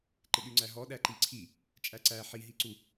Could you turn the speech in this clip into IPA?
ǃ ɪ ɗ y ŋ͡ǀ æ ɦ ɔ ɗ æ ǃ i ǀʰ i | t͡ʃʼ æ ǀ æ ħ i ɦ i ǀ u

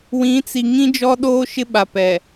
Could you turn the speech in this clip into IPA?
w ĩ˨˦ t͡s i˨ ŋ ĩ˦ d͡ʒ ɔ˦ ɗ oː˦ ʃ ɪ˦ ɓ a˨ p ɛ˨

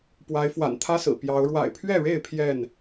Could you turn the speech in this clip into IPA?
p w a˨˦ ɪ̯ f w a̰˨˩ n t̪ʰ ä˦ s ɹ̩˨˩ p j ɑ˨˦ ʊ̯ ɻ w a̰˨˩ ɪ̯ pʰ ɥ ɛ˥˨ ɻ e˥˨ ɪ̯ pʰ j ɛ˥˨ n

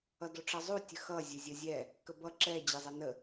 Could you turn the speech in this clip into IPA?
ʌ d o ʈ͡ʂ ʌ zˤ u tʲ ə x ʌ zʲ ə zʲ ə zʲ ɛ | k ə b ʌ ǁ ɛ d͡ʑ ɛ zˤ ɛ n ə

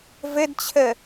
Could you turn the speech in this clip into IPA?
v ɘ d t͡ɕʰ ə

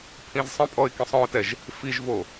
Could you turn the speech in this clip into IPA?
pʰ ĩ z sˤ ə̃ pʼ ɔ ɪ̯ k ĩ sˤ ɔ̃ ʊ̯ t ɛ ʒ | f i ʒ v o

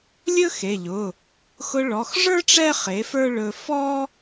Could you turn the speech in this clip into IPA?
lʲ ɵ˥ x e˩˧˩ ʎ ʊ˩˧˩ | x ʊ˧ ɭ ɔ˩˧˩ x ʐ ə˞˥ ʈ͡ʂ ɛ˥˧ χ e˩˥ f ə˞˥˧ ɭ ɵ˧ f ɔ˥

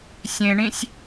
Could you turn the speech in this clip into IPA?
sʲ ẽ ɳ ĩ sʲ

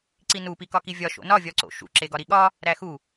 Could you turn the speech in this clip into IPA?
ǀ i n u p i k ɒ k i vʲ ɒ ʃ o̰ n ɒ vʲ ɒ ǀ o̰ ʃ ṵ ǁ e ɡ ɒ ɾ i ɠ ɒ | ɾ æ x u

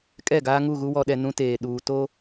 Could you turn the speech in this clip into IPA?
kʼ ɛ˦˨ ɡ aː˦ ŋ u˦˨ ɣ u˦ w ɔ˨ ɗ ɛ˨ n ũ˦ t eː˨ ɗ uː˨ t o˦

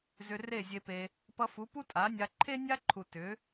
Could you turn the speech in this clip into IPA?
z ʏ˧ r e˦˨ zʲ e˧ p e˧ | p ʌ˧ f u˨˦ p u˦ tʼ a˨˦ nʲ a˧ ǃʰ e˦ nʲ a˦ ǃʰ u˨ t ʏ˨˦

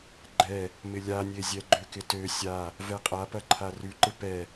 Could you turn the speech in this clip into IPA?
ɡ͡ǃ ɛ | m ɪ lʲ a nʲ e zʲ ɛ ɡ͡ǃ ø k ɪ t ø sʲ a | v ɛ qʼ a p ɐ ǃʰ a r ʉ ǃ ɪ p ɛ

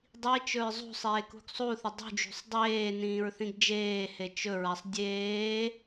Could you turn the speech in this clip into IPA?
dˤ i t͡ʃ ɵ ɹ zˤ ṳ sˤ eː k ṳ ɡ sˤ u θ ə dˤ ṳ d͡ʒ ṳ sˤ dˤ eː n ĩː ɹ θ ĩ ɡ d͡ʒ eː h e t͡ʃ ɵ ɹ a sˤ dʲ eː

